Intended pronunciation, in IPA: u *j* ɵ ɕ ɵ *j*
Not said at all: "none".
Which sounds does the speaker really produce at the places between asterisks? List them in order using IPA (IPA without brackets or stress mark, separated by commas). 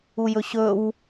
j, w